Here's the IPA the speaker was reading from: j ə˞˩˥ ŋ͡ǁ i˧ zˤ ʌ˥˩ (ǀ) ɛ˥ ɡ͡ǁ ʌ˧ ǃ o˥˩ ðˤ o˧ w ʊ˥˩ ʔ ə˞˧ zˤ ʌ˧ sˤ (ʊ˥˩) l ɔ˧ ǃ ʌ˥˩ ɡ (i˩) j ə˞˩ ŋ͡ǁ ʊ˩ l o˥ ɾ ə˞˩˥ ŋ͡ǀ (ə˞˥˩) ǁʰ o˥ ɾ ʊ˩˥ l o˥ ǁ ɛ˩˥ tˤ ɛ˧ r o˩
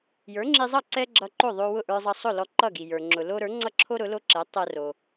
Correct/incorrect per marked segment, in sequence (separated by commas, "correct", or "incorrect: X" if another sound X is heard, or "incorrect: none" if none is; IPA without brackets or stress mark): correct, correct, correct, incorrect: ʌ˥˩